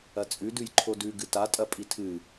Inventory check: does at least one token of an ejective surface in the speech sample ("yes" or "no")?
yes